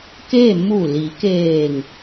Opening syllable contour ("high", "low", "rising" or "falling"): falling